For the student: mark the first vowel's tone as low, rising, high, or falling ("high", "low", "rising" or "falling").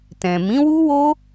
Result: low